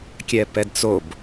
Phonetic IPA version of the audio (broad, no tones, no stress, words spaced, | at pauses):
kʲɛpɛdt͡sob